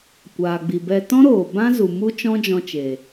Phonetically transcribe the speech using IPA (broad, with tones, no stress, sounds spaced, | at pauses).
kʷ aː˨ ɡ͡b i˨ b ɛ˧ t ɔ̃˦ ɾ oː˨ b ã˦ z u˨ m u˦ t͡ʃ ɔ̃˦ d͡ʒ ɔ̃˧ t͡ʃ eː˨